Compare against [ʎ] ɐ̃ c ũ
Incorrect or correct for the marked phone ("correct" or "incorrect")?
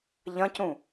correct